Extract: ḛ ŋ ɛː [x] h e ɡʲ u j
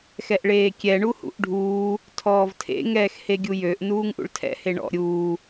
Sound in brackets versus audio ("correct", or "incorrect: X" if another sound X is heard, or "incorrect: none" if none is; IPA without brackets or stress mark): correct